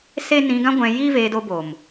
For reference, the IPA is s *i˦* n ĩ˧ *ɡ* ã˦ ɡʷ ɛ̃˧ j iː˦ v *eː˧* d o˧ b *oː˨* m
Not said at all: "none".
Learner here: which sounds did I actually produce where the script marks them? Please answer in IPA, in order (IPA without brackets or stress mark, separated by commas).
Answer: e˦, ɡ, eː˧, oː˨